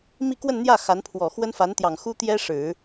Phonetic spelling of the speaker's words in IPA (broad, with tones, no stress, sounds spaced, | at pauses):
m i˥˧ k w ə˥˧ n n̪ j ä˥˩ x a˧˥ n pʰ w ɔ˨˩ x w ə˥ n f a˧˥ n t̪ j ɑ˨˩ ŋ x u˥ t̪ j ɛ˥ ʂ ɻ̩˨˩˦